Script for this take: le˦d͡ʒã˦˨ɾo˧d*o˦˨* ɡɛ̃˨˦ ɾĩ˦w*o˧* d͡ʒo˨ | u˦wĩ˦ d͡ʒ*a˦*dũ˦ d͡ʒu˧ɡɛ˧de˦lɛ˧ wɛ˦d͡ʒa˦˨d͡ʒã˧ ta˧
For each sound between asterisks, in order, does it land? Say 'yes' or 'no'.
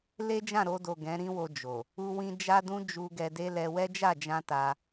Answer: no, yes, yes

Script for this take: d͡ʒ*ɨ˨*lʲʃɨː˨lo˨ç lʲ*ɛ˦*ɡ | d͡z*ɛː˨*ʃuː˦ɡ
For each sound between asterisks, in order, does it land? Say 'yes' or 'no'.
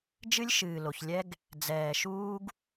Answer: no, yes, yes

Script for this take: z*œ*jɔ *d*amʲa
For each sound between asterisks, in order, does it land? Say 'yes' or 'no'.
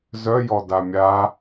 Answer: yes, yes

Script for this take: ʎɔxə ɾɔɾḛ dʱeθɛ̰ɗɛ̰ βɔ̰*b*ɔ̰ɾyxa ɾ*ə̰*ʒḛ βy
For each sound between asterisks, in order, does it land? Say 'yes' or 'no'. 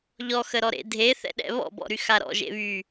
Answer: yes, no

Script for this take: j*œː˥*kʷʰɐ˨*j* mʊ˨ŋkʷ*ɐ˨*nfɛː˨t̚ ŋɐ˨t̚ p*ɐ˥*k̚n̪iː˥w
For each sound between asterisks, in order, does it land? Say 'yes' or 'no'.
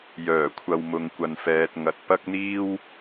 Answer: no, no, yes, yes

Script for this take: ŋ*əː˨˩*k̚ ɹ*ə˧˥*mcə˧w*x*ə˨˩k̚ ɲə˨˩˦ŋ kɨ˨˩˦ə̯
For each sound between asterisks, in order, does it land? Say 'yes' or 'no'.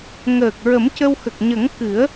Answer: yes, no, yes

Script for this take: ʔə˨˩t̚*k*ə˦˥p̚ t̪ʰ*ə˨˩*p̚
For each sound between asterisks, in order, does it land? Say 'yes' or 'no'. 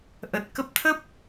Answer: yes, no

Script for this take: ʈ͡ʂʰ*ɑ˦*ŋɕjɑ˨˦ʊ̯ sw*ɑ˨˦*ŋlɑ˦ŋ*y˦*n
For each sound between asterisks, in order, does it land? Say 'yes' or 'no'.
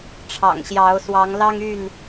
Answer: no, yes, no

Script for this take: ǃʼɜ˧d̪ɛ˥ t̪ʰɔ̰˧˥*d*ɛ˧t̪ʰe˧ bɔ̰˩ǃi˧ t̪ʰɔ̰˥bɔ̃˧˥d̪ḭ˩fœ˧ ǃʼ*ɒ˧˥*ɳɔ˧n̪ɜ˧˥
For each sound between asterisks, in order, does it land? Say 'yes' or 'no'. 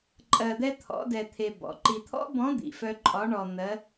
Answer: yes, yes

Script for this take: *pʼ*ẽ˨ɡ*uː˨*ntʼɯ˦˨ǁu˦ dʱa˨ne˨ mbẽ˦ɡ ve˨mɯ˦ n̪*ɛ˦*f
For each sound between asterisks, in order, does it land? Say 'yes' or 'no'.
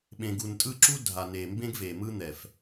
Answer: no, no, no

